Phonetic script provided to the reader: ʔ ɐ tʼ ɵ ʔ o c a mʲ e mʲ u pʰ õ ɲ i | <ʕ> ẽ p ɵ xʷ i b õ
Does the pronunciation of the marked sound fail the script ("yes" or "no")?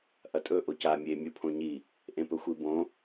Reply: yes